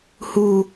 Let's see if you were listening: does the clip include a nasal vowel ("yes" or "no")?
no